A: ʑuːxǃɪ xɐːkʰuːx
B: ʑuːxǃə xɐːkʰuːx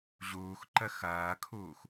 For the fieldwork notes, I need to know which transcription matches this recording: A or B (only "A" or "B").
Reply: B